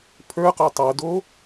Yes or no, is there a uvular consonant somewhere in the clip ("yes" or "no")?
yes